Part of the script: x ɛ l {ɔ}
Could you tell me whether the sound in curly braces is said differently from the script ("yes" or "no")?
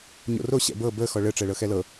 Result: yes